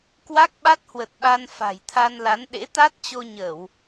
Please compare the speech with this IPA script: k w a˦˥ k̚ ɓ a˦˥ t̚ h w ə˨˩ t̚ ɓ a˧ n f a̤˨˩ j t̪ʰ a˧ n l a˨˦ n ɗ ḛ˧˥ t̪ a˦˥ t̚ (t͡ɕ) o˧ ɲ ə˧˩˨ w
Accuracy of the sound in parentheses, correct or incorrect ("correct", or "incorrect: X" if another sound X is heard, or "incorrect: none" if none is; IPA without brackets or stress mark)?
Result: correct